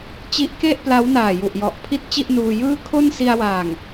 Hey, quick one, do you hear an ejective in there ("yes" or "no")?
no